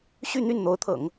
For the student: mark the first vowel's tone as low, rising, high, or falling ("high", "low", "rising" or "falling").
falling